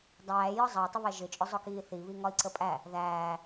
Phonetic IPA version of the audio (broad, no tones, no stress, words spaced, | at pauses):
dˤæːjɒ zˤɑi̯tˤɪβɛ ʒɪt͡ʃʼʊ zˤʊkiːθi βiŋɒi̯ǀəpʼæ | ðæː